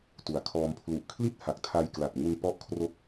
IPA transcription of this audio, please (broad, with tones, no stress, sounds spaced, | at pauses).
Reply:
t u˩˦ a̯ kʰ ɔː˧ m pʰ l u˨˩ ʔ kʰ l i˥˩ t̚ h a˨˩ k̚ tʰ a˧ j k l a˨˩ t̚ ŋ u˧ n p ɔ˦˥ ʔ kʰ r o˦˥ k̚